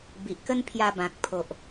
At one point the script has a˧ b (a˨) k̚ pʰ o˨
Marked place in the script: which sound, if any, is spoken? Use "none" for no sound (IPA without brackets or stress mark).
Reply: ã˨